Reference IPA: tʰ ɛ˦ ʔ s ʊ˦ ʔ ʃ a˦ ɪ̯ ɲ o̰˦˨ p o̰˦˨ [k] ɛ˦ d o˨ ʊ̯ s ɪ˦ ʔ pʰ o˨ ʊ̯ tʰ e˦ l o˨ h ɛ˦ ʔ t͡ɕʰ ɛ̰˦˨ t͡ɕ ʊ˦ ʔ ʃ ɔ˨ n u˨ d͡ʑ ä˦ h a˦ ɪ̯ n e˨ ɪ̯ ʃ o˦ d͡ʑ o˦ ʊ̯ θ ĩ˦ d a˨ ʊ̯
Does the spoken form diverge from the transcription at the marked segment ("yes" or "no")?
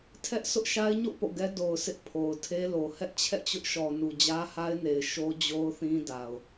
yes